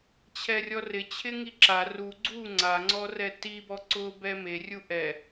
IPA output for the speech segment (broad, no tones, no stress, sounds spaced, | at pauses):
t͡ɕʰ ɛ rʲ ɔ r ɪ t͡ɕʰ ɪ ŋ i ǁ a r u ɡ͡ǀ u ŋ͡ǀ a ŋ͡ǀ ɔ r ɛ t i b ɔ ǀ ʊ b ɛ m e rʲ u ʔ ɛ